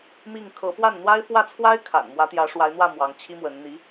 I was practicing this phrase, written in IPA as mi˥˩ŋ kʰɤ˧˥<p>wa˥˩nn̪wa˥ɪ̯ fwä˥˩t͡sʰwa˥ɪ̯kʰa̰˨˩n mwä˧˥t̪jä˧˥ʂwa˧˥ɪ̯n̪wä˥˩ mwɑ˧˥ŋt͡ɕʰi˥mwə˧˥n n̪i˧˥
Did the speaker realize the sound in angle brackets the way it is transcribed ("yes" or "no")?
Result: yes